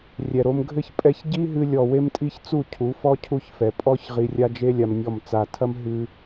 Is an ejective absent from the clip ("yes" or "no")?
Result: no